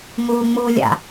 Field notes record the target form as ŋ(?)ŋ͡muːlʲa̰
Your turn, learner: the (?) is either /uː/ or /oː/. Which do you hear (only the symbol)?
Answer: uː